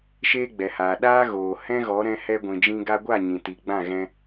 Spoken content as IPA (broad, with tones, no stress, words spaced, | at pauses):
ʃeː˦ɡ͡bɛ˨haː˨ ɗaː˦ɣoː˨ hɛ̃˦ɣɔ˨˦ ɾɛ̃˧hɛ˧ɡʷĩ˨d͡ʒĩ˧ ɡa˧ɡʷa˦˨ ɲĩ˨ti˨ ɡ͡bã˦˨ɣɛ̃˧